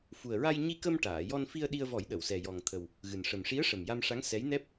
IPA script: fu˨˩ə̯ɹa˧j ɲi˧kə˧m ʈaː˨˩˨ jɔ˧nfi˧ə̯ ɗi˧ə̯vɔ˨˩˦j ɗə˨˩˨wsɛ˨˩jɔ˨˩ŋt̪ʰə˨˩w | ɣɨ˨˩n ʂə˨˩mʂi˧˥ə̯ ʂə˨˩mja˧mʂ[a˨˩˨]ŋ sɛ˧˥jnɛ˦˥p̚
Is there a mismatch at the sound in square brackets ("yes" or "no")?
yes